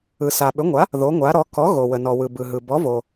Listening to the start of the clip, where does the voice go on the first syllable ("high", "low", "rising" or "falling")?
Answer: low